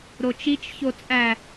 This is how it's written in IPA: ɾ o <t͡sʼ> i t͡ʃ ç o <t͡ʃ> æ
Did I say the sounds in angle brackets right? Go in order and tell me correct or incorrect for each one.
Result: incorrect: t͡ʃ, incorrect: t͡sʼ

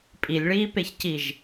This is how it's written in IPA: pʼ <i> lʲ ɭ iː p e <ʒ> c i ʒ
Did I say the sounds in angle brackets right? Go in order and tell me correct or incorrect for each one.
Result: correct, incorrect: ç

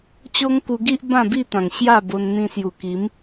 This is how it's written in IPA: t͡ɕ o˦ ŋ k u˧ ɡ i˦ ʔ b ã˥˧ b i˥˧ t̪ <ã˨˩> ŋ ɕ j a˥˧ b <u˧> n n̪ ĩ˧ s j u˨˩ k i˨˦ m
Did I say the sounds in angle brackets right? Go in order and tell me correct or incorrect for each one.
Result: correct, incorrect: o˧

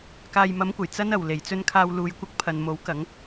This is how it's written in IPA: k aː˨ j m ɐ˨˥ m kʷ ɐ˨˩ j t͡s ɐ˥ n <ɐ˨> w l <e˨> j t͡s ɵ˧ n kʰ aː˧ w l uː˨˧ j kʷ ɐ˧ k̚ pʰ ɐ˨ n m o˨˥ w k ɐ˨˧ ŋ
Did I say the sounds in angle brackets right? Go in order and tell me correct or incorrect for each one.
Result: correct, incorrect: e˨˩

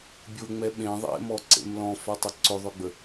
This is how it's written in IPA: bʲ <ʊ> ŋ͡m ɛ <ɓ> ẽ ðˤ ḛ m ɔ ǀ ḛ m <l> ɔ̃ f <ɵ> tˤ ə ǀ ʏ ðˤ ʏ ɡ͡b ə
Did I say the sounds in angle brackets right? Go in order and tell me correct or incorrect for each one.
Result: correct, correct, correct, incorrect: œ

